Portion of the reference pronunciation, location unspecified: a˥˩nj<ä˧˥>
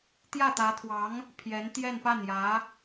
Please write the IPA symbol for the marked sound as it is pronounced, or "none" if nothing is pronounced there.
ä˧˥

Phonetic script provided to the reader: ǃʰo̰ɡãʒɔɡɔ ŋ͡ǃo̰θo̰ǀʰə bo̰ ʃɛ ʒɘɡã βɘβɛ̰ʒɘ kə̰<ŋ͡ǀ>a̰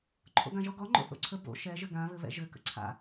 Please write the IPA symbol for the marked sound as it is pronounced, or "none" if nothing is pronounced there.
ǀʰ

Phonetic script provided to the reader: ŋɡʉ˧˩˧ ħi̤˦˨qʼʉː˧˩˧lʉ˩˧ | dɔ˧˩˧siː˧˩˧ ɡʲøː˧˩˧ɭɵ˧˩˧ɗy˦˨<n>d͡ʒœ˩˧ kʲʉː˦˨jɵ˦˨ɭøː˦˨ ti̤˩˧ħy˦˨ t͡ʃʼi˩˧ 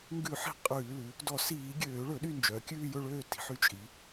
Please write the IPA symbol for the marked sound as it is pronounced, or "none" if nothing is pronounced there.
n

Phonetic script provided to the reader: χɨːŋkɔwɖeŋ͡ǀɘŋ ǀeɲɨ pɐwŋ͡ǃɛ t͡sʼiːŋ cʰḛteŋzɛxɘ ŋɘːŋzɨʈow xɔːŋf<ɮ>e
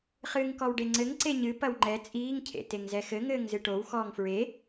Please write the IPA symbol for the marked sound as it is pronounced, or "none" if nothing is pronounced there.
ɹ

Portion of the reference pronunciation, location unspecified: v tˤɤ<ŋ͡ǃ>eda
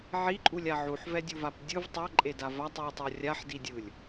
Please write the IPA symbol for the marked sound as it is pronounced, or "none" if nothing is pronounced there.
ǃʼ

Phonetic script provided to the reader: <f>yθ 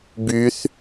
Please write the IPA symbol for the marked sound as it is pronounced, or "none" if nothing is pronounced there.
b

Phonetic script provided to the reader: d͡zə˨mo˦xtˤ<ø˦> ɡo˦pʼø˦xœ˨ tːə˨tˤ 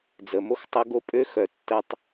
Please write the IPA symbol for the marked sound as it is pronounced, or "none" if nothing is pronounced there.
ə˦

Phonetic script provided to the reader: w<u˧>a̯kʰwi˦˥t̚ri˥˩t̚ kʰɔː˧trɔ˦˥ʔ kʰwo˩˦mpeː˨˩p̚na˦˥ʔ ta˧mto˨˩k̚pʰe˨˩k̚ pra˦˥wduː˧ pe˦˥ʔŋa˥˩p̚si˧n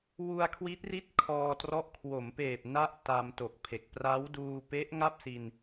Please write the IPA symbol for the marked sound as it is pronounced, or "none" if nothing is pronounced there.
u˧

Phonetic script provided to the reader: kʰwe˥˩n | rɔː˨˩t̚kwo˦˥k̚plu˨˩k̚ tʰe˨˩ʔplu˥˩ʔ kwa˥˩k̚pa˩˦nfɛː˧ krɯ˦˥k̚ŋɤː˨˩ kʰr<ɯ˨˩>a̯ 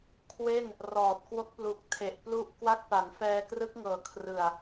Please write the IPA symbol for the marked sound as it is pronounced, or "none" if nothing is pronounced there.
ɯ˨˩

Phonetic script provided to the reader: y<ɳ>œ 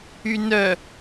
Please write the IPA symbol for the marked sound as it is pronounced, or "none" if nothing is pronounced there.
n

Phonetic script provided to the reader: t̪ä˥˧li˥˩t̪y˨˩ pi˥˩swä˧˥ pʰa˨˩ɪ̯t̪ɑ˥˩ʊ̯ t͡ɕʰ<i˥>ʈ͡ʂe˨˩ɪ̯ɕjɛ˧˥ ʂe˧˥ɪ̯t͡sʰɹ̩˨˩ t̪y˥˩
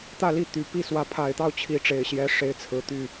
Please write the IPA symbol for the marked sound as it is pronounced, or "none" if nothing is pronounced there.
i˧˥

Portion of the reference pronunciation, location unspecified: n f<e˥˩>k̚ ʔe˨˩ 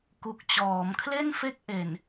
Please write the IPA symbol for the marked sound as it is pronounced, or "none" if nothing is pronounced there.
e˥˩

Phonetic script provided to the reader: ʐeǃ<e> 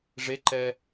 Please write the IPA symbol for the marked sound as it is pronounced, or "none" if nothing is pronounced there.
ɛ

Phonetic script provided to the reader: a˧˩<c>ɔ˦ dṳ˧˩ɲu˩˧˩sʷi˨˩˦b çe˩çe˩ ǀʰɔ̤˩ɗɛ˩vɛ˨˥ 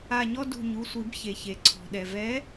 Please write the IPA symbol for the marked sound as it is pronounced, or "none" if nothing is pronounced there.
ɲ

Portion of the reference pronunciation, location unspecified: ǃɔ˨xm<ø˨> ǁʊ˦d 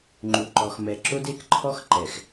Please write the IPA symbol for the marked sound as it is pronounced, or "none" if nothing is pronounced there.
ɛ˨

